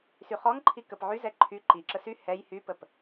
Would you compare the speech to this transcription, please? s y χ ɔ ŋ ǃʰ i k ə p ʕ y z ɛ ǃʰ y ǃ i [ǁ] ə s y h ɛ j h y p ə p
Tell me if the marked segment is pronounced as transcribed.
yes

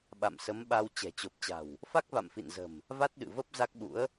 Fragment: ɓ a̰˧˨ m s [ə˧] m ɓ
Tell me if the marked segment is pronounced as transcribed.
no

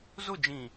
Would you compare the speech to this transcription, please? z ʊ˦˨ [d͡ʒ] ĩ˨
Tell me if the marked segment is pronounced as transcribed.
yes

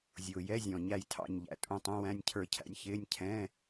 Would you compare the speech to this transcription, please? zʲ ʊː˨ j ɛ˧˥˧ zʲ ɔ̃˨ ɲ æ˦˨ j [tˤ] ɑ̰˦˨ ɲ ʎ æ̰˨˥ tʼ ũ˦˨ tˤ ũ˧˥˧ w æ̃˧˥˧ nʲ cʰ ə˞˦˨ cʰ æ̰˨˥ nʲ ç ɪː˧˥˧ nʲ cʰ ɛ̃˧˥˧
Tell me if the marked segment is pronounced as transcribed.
no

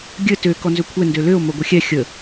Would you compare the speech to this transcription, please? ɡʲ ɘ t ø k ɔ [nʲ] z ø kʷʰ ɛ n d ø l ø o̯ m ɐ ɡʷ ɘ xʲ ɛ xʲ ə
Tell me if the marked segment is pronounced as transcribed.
no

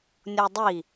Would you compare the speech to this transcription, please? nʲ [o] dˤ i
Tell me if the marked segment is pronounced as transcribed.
yes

